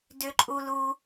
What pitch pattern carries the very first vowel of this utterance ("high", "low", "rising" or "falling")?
high